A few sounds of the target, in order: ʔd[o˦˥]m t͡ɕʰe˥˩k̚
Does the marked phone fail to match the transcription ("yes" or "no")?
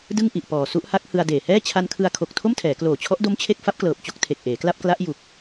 no